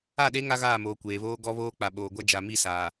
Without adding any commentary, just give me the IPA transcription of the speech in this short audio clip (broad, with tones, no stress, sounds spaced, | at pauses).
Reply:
a˦˨ ɗ e˦ ŋ a˦ ɣ aː˦˨ m oː˨ kʷ eː˨ β oː˦ ɡ ɔ˦ β oː˦ k͡p a˨ ɓ oː˨ ɡʷ a˦ d͡ʒ a˨ m i˦˨ s aː˨